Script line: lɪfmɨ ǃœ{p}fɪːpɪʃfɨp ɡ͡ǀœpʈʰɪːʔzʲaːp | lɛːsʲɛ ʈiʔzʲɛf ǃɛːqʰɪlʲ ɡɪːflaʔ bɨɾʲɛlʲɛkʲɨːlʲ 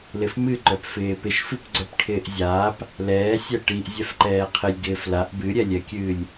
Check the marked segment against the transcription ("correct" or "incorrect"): correct